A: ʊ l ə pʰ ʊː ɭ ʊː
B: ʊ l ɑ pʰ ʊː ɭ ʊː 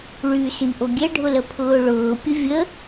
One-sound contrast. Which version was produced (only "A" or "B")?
A